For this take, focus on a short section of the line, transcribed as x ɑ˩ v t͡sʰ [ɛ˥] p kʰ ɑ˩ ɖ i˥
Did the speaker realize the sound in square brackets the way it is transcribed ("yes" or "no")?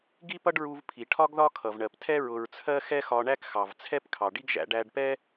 yes